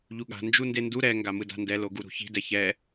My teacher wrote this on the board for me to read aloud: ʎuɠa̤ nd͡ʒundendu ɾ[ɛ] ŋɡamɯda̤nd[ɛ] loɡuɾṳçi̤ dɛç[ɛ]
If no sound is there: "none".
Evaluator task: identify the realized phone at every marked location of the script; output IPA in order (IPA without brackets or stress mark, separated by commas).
ɛ, ɛ, ɛ